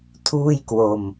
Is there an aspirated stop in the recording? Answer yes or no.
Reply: yes